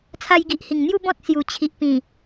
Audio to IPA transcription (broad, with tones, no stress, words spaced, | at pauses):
t͡sʰa˧jɡi˨ʔhi˨˩ŋn̪ju˥˧ bɔ̃˦t̚ sju˨˩t͡ɕʰi˨ʔpĩ˨˩